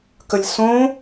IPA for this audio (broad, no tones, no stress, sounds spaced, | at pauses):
k ə lʲ s õ